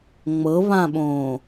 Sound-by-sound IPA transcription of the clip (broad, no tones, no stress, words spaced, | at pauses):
ŋ͡mɤβãɓõː